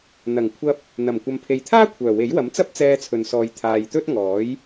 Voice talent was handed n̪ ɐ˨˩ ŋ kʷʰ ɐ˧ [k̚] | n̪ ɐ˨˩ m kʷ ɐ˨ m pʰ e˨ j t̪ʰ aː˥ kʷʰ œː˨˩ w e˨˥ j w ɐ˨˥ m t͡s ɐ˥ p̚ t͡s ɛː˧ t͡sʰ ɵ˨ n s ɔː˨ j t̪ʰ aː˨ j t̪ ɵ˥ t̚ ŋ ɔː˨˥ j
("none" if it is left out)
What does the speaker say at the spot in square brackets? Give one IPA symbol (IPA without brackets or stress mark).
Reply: p̚